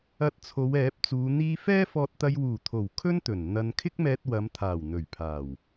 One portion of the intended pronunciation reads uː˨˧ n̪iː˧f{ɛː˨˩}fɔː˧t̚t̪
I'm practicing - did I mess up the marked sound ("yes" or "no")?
yes